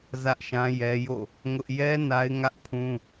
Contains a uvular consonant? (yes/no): no